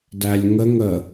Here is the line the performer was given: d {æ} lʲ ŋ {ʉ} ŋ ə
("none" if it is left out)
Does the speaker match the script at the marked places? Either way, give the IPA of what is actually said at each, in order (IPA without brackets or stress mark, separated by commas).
æ, ə